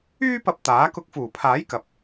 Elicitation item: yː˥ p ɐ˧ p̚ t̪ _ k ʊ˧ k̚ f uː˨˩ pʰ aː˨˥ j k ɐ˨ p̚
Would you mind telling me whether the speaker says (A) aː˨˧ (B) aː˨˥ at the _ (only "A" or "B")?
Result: B